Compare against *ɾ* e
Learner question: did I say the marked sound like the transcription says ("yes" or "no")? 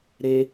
yes